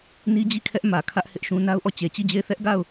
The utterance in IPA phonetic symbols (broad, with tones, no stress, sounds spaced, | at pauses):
n i˦ d͡ʑ i˦˨ kʰ ɛ˦ ʔ m ä˨ kʰ ä˦ ʔ h ɪ˦ ʔ ʃ ũ˦ n a˦ ʊ̯ ʔ ɔ˦˨ t͡ɕ e˨ t͡ɕ i˦˨ d͡ʑ e˦˨ ɪ̯ θ ɛ˦ ʔ ɡ a˦˨ ʊ̯